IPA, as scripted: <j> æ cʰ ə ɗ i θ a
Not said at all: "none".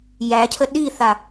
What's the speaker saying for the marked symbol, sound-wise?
j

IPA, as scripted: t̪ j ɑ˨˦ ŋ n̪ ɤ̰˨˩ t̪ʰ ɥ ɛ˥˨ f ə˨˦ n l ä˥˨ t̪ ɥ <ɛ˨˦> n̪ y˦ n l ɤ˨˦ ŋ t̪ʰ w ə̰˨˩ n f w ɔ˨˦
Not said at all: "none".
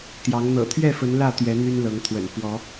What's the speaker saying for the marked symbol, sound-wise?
ɛ˨˦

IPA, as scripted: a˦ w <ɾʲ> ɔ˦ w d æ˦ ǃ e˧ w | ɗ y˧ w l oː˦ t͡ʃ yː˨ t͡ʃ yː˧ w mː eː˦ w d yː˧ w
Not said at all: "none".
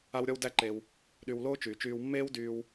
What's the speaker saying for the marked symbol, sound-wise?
ɾʲ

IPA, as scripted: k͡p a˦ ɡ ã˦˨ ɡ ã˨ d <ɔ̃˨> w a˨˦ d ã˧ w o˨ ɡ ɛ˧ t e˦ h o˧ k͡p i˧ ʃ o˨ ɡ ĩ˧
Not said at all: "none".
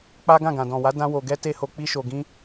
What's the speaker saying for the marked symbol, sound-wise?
ɔ̃˨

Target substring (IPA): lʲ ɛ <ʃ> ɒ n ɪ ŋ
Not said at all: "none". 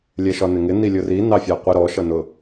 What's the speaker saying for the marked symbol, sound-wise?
ʃ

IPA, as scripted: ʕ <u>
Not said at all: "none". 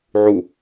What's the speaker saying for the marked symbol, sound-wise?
u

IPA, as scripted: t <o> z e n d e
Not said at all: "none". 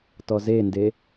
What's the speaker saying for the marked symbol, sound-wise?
ɔ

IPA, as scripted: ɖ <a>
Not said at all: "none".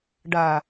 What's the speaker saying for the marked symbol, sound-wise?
a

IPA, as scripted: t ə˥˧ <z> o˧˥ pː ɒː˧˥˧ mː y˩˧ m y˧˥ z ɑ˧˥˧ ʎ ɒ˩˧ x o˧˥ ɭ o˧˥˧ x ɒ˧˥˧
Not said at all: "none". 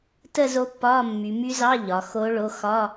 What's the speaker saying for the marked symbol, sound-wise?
z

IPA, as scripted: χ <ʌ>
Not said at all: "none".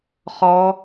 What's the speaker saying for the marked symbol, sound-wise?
ɔ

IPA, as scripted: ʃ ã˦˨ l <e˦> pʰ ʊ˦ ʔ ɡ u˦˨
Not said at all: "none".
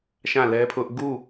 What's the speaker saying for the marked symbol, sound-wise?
ɛ˦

